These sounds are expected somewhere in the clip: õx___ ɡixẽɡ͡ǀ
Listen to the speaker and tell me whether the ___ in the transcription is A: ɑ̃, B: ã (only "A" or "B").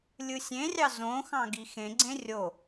A